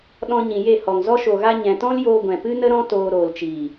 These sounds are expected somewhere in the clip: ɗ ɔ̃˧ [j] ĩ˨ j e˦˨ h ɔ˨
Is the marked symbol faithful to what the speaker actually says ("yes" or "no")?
no